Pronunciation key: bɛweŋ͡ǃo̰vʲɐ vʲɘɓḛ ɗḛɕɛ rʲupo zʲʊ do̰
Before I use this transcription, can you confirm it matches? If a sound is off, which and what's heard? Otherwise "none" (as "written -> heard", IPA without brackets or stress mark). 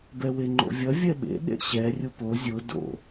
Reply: ɘ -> ɛ